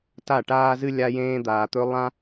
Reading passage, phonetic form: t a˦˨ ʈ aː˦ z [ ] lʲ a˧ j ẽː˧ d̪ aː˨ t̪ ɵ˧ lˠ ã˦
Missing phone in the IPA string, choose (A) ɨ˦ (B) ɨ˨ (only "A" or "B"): A